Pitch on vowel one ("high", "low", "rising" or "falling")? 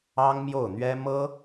high